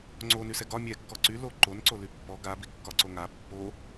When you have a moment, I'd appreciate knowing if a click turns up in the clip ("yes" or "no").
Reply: yes